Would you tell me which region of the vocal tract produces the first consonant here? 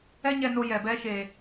palate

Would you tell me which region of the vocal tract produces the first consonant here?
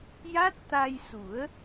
palate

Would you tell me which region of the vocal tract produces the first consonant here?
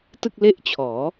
tongue tip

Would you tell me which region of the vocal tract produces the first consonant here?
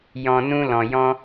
palate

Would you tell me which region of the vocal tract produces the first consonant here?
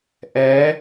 throat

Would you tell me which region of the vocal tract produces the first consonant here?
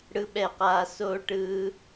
retroflex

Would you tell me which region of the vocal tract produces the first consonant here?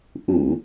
throat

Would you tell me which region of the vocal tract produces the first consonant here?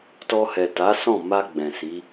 tongue tip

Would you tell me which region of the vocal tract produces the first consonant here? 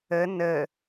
tongue tip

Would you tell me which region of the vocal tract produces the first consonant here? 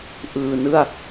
throat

